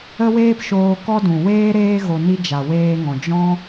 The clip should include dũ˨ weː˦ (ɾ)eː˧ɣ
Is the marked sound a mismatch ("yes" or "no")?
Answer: no